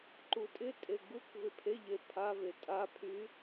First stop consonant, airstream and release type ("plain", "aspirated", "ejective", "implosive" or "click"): click